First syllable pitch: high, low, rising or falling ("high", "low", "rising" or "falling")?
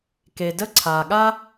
low